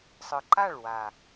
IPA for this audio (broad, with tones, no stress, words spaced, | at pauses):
sˤɯ˨ǃa˦˨ɭwa˨